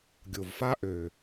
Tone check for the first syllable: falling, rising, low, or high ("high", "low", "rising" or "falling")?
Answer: low